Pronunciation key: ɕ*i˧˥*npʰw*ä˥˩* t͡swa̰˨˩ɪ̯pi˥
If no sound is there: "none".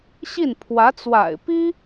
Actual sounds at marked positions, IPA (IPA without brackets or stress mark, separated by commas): i˥˩, ä˧˥